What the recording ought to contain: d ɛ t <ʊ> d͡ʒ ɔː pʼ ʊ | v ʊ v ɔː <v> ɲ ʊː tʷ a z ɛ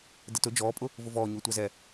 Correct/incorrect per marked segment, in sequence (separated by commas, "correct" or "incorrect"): correct, incorrect